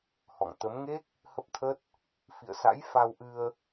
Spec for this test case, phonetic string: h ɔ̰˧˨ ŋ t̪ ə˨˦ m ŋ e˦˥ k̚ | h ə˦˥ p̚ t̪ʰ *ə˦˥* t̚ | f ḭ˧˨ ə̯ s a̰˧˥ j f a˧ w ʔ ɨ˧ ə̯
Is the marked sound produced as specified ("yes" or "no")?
yes